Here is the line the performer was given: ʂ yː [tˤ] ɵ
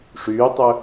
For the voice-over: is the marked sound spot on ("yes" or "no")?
yes